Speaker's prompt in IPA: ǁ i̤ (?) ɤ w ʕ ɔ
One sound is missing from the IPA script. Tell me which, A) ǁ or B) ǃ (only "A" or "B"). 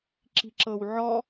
A